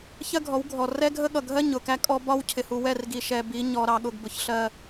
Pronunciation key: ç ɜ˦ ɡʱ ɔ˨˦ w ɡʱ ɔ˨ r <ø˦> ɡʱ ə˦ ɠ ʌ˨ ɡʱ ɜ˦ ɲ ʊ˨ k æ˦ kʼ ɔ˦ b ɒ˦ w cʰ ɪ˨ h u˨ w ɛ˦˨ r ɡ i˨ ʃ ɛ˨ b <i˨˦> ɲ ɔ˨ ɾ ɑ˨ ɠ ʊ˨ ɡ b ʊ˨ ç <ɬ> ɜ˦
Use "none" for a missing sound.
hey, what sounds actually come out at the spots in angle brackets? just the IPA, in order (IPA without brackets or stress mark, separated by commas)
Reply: ɛ˦, i˨˦, ɬ